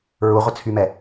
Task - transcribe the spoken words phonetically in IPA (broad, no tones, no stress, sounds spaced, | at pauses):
ɹ u ʁʷ ə t͡sʰ y m ɛ